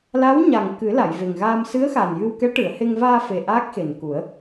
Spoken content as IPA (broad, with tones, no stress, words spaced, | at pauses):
la˧˥wɲa˨˩ŋ kɨ˨˩˦ la˨˩˨jve˨˩ŋɣaː˧m sɨ˧˥ə̯xa˨˩njɨ˧w kɛ˧˥ʈɨ˨˩˨ə̯he˧ŋ vaː˧fe˨˩ ʔa˦˥k̚xe˨˩nku˨˩˦ə̯